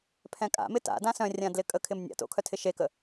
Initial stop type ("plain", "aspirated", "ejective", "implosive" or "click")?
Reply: aspirated